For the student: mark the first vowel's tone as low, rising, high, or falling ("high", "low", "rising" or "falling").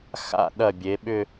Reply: falling